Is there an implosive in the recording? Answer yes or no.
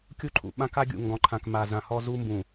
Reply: yes